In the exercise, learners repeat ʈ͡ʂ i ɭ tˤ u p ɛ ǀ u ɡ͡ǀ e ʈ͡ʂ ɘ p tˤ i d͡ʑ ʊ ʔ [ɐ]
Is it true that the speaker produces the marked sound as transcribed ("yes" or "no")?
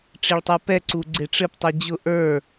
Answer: no